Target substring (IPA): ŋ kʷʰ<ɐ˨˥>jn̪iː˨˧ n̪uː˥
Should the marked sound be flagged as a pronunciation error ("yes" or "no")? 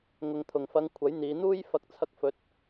no